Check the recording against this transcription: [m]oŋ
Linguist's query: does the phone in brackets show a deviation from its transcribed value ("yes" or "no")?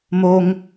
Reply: no